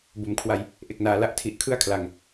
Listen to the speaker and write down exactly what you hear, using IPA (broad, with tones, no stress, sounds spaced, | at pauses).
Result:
b o˩˦ m kʰ w a˧ j | ʔ e˨˩ k̚ n aː˩˦ l a˥˩ ʔ tʰ i˨˩ ʔ kʰ ɯ˥˩ a̯ kʰ l a˨˩ ŋ